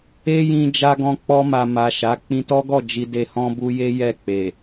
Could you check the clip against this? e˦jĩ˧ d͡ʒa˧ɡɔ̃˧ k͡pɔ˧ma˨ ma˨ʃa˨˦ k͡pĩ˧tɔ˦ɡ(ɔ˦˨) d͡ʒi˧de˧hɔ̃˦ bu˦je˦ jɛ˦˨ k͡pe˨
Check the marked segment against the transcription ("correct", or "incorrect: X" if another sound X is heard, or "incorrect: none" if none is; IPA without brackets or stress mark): correct